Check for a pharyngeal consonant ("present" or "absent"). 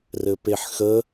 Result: present